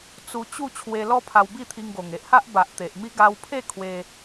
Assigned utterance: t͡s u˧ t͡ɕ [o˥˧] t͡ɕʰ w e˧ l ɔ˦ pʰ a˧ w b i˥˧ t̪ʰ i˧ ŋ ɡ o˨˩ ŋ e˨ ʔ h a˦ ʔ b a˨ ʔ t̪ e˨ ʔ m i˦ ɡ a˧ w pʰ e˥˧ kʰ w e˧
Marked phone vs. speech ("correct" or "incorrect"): incorrect